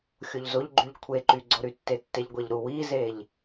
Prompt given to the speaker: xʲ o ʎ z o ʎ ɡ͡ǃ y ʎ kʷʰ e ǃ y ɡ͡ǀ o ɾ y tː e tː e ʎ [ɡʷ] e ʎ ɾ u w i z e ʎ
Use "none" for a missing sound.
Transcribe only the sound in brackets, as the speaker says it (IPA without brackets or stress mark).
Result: ɡʷ